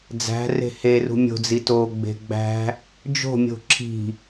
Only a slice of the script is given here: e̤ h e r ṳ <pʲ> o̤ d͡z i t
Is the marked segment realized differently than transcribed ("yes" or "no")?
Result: yes